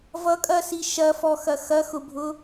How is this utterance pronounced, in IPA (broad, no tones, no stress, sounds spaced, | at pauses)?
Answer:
v ʌ kʼ ɐ s i ʃ ɐ f ɔ x ɐ x ɐ x ʊ bʱ ʊ